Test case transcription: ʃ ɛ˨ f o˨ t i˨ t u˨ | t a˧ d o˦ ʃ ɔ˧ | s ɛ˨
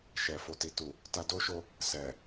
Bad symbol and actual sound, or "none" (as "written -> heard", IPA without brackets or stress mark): ɔ˧ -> o˧